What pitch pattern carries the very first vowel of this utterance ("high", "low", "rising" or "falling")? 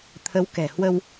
rising